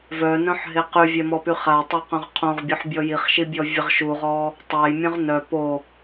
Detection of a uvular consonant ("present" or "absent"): present